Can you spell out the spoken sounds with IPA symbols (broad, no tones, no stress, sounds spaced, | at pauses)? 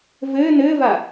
v ɘː n ɘː v a